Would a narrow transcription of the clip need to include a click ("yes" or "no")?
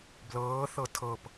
no